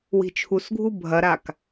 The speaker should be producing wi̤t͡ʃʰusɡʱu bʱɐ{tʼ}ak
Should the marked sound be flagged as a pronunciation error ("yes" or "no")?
yes